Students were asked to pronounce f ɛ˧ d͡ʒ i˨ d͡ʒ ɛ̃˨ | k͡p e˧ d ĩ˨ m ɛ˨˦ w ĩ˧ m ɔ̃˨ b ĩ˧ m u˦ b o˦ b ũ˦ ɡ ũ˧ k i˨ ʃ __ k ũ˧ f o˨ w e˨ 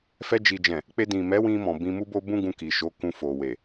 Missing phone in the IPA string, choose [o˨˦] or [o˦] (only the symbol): o˨˦